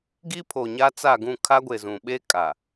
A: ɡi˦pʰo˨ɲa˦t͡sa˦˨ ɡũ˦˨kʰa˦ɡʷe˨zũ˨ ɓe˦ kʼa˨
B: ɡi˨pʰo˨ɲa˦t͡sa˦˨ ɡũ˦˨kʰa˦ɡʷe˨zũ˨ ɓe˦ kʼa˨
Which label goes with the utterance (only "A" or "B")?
A